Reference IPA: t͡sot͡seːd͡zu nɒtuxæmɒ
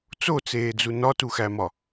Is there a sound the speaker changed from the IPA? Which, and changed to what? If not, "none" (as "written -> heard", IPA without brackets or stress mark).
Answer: none